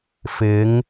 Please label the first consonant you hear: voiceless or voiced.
voiceless